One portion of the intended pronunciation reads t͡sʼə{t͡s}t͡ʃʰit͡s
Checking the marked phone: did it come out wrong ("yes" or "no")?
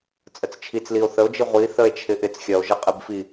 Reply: no